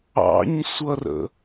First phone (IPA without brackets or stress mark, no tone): ɑ̰